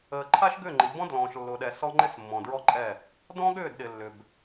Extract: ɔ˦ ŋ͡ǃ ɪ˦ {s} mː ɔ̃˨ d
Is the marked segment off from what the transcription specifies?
no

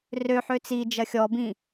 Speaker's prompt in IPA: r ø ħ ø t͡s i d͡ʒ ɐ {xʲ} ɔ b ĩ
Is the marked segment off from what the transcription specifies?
no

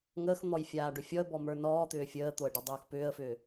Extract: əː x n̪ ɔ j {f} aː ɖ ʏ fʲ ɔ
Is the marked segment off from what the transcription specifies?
yes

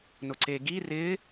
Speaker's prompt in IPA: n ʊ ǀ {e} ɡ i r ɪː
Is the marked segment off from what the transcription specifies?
no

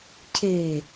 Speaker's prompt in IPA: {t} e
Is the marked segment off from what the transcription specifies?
yes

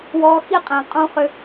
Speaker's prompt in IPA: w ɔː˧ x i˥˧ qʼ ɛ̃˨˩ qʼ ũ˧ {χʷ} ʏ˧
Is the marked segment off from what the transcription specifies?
yes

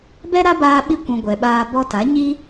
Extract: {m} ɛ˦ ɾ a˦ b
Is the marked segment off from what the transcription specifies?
yes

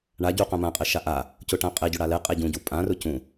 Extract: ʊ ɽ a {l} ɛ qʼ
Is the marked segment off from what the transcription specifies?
no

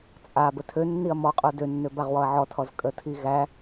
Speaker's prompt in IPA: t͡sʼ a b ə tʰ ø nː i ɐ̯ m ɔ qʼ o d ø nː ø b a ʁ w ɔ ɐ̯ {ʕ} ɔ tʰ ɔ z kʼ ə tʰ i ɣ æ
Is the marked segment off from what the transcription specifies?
no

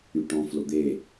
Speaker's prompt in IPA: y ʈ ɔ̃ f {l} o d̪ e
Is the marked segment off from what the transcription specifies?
no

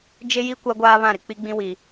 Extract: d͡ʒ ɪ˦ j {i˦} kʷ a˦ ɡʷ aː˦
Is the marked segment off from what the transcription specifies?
no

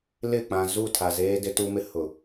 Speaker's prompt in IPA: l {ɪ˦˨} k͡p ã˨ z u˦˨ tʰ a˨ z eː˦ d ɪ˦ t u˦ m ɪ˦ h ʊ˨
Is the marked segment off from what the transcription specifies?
no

